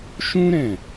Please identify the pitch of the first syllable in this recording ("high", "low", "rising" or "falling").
high